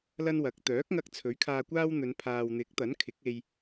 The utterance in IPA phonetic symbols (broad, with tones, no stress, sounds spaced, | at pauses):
l ɐ˥ n w ɐ˨˥ k̚ t̪ œː˨˥ k̚ ŋ ɐ˧ k̚ t͡sʰ ɵ˨˥ ɥ kʰ aː˧ kʷ aː˥ w n̪ ɵ˨˧ n pʰ aː˨ w n̪ ɪ˨˥ k̚ t̪ ɐ˨˥ n kʰ ɪ˨˥ k̚ e˧ j